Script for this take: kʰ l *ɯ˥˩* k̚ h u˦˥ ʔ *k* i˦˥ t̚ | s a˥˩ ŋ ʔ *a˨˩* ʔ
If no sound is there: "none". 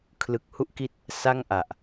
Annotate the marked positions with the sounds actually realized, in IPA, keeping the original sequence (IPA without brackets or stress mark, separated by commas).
ɯ˨˩, k, a˨˩